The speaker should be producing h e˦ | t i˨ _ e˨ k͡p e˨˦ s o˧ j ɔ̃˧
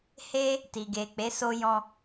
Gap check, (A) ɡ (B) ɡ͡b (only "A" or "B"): A